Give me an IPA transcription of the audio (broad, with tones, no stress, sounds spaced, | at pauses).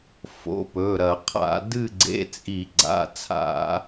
f o̰˩˧˩ p ɵ˩˧˩ ɾ ɐ˧˩˧ qʰ a̰˧˩˧ d ɨ˥˨ ɡ͡ǀ ḛ˨˦ t͡sʼ i˧˩˧ ɡ͡ǀ a̰˩˧˩ t͡sʰ a̰˧˩˧